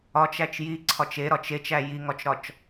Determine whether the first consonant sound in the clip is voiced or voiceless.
voiceless